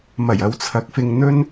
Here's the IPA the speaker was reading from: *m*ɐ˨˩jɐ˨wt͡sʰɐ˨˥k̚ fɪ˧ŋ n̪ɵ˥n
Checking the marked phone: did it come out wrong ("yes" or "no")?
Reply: no